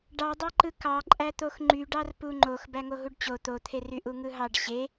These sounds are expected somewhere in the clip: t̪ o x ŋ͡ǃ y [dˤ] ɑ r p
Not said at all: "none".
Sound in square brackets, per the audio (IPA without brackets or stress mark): ɖ